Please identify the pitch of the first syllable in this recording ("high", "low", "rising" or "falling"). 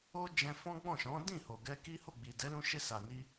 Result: high